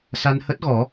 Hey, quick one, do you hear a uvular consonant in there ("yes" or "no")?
no